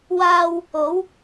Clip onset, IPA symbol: w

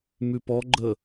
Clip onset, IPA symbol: m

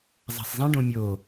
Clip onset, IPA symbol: zˤ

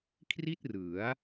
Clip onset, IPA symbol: kʰ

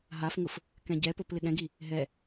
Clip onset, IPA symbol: ɦ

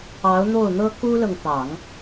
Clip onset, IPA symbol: ɑ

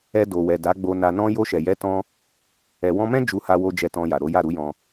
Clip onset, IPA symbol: ɛ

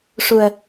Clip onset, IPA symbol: ʂ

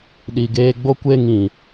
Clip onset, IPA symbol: ɗ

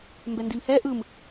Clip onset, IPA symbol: m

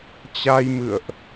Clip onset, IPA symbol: t͡ɕ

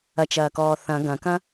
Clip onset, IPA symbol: ɐ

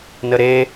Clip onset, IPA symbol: n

